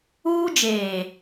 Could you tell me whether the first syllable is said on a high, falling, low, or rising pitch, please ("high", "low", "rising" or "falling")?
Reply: high